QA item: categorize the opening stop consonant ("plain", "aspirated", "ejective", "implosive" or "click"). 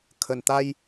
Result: aspirated